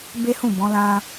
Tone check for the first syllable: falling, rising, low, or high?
high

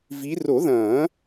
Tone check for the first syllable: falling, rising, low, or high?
rising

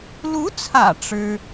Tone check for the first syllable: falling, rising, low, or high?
rising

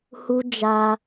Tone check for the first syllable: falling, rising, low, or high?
high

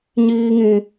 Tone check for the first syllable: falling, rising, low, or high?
high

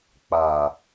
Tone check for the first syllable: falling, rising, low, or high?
low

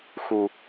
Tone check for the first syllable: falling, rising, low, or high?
low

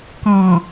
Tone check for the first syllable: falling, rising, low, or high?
low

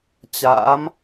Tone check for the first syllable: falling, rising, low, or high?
rising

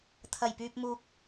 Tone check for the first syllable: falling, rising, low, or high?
low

